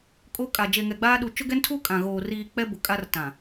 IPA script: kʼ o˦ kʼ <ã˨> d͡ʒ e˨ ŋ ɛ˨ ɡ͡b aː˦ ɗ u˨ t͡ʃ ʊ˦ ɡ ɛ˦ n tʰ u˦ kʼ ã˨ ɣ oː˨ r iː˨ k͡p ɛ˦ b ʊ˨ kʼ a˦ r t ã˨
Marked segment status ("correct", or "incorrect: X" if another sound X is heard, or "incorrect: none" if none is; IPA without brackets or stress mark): incorrect: a˨